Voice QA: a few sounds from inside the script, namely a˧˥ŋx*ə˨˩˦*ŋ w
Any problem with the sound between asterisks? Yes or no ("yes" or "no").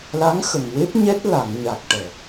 yes